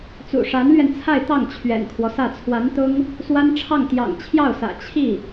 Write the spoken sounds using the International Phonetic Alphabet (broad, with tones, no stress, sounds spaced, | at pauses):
t͡s ṵ˨˩ ʂ a˧˥ n l ɥ ɛ˧ n t͡sʰ a˥˧ ɪ̯ t̪ ɑ˥˩ ŋ t͡ɕʰ ɥ ɛ̰˨˩ n kʰ w ɔ˦ s ä˥˩ t͡sʰ w a˧˥ n t̪ ʊ˥ ŋ | s w a˥ n ʈ͡ʂʰ ɑ˥˩ ŋ t̪ j ɑ̰˨˩ ŋ t͡ɕʰ j ɑ˥˩ ʊ̯ s ä̰˨˩ t͡ɕʰ i˥˩